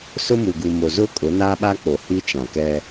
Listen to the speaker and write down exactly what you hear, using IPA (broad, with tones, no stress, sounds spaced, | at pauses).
s ʊ˦ m u˨ ɡ u˨ m o˨ z ʊ˦ kʼ ʊ˨˦ n aː˦ ɓ a˦ k͡p o˨ h i˦ t͡ʃ ã˨ k ɛ˦